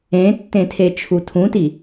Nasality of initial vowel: nasal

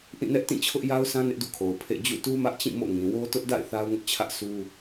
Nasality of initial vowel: nasal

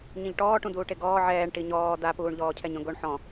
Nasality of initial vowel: nasal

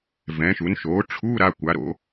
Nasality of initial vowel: nasal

